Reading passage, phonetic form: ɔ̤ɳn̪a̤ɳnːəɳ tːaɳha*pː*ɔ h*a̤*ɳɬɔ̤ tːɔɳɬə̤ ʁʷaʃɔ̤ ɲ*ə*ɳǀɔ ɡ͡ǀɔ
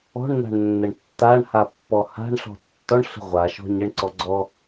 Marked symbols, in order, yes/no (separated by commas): yes, yes, yes